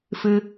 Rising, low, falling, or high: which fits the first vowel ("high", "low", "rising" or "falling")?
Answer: high